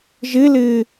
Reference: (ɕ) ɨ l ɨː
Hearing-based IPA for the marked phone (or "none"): ʒ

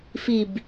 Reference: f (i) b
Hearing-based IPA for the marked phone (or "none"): i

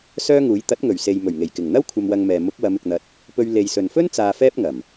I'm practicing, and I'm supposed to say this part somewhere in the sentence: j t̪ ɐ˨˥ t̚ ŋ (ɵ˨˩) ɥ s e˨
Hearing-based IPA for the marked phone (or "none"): ɵ˨˩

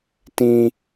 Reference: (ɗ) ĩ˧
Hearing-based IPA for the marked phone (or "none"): t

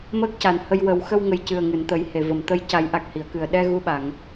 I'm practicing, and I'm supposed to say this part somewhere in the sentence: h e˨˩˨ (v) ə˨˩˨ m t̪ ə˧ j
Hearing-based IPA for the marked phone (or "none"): v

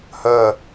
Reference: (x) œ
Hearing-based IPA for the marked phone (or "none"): h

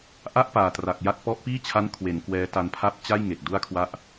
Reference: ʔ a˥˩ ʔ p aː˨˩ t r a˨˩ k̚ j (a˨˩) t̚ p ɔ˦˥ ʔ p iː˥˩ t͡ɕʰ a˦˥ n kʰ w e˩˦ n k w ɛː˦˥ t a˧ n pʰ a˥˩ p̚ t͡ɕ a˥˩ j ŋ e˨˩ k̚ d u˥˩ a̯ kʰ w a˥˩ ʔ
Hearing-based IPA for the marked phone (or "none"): a˥˩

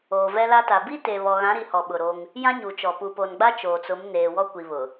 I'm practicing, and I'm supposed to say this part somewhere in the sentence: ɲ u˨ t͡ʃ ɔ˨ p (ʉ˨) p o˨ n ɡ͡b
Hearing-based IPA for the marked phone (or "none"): u˨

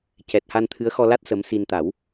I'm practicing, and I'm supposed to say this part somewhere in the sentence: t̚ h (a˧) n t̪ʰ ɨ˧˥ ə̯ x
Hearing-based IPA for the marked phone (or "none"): a˧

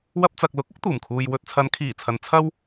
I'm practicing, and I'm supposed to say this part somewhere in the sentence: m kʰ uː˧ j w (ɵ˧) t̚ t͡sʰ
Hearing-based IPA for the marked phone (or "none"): ɵ˧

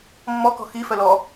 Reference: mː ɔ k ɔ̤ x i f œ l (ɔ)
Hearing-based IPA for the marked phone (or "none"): ɔ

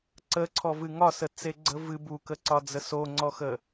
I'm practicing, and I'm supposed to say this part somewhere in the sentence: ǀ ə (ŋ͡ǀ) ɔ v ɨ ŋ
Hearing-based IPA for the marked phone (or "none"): ǀʰ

